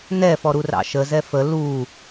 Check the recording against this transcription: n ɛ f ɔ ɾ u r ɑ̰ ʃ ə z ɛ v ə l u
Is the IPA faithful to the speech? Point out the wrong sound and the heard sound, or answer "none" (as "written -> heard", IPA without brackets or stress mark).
v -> f